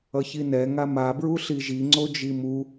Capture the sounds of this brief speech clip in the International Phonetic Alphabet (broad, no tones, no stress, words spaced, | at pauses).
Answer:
ʌçinɛ ŋama bɹuɬiʒi ŋ͡ǀod͡ʒimu